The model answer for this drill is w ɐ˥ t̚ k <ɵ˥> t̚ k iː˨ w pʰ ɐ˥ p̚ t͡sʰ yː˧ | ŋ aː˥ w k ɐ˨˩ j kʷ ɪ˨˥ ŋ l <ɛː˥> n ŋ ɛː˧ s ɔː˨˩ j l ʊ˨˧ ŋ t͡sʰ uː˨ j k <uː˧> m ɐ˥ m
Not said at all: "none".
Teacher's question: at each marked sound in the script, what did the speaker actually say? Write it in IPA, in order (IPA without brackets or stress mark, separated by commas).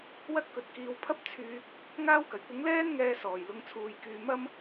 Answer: ɵ˨, ɛː˥, yː˧